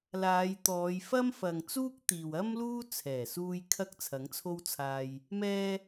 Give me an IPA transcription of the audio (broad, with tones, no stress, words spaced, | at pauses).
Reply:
laː˨˧jt̪ɔː˨˧j fɐ˥mfɐ˨ŋ t͡suː˥k̚t̪iː˨wɐ˥mluː˥ t͡sʰɛː˨˩suː˧j kʰɐ˥k̚t͡sʰɐ˨˥ŋt͡sʰo˥wt͡sʰaː˧j | mɛː˧